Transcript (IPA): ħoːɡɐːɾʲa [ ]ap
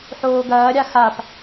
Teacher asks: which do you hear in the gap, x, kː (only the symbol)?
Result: x